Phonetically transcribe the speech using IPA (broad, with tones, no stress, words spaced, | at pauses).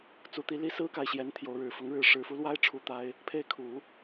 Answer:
t͡su˧˥t̪i˧˥li˥ sɹ̩˥ka˨ɪ̯ɕjɛ˧˥n t̪ʰjo˧˥ʊ̯ɻɻ̩˨˩ fʊ˧˥ŋɻɻ̩˥˩ ʂɻ̩˧˥ fu˧˥lwa˥ɪ̯ ʈ͡ʂʰu˥˩t̪a˥ɪ̯ | pʰe˥˩ɪ̯kʰu˨˩˦